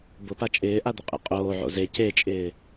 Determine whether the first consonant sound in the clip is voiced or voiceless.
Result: voiced